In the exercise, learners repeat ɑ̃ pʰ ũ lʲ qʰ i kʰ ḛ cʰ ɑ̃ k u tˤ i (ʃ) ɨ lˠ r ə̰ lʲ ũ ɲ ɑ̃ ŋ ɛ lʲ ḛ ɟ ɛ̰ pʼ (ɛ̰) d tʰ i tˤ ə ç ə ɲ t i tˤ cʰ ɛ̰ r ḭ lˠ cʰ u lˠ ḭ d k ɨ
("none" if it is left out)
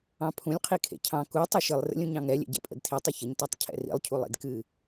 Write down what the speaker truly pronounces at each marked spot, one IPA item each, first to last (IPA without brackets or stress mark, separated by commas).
ʃ, ə̰